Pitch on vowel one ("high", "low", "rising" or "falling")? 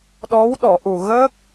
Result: rising